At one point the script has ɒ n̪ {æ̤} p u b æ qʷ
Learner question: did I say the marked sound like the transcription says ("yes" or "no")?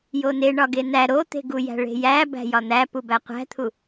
no